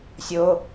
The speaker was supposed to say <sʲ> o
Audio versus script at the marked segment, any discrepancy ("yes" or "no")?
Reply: no